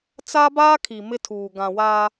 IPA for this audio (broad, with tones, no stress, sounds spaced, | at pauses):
t͡s a˦ b aː˦ kʰ i˨ m ɪ˦ tʰ uː˨ ɡ ã˨ w a˦